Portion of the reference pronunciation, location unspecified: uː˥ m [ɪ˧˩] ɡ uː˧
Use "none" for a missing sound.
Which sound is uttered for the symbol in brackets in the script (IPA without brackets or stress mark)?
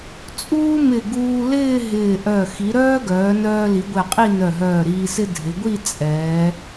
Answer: ɪ˧˩